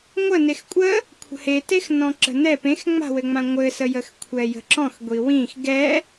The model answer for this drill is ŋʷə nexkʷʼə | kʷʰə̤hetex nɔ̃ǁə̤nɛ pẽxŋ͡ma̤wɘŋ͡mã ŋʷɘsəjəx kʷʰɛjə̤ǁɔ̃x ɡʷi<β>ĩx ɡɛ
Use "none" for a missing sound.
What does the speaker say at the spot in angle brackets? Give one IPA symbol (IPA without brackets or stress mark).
w